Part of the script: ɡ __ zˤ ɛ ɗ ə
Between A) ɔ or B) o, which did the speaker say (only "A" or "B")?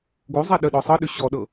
B